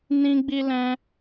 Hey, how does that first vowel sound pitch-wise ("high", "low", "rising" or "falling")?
high